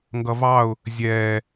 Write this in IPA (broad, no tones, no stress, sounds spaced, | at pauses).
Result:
ŋ ɡ ʌ v ɑ ʊ̯ | zʲ ɛː